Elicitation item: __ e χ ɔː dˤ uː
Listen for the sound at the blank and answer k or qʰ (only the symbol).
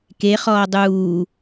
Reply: k